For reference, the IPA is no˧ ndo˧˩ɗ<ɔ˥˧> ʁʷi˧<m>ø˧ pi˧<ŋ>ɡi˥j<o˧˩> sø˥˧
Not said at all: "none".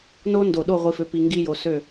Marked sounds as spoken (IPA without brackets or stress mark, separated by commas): o˥˧, f, ŋ, o˧